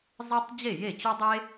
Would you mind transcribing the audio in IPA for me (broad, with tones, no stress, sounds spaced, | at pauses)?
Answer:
zˤ ɯ˥ tˤ d͡ʑ e˥˩ j e˥˩ t͡ɕ ø˥ dˤ e˥